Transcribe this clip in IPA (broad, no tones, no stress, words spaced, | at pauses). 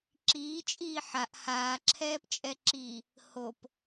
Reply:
ǁiː t͡ʃʼiːħaʔ haːǁʰɛːpt͡ʃʼɛǁiː | hop